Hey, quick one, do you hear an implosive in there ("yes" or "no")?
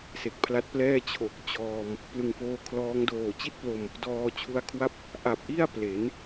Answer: no